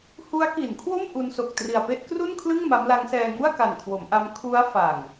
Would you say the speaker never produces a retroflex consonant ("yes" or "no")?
yes